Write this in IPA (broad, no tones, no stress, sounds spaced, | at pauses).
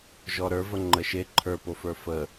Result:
ʒ ɔ ɾ ə˞ v ə ŋ͡ǃ ə ʃ e ǃʰ ə˞ p o f ə˞ f ə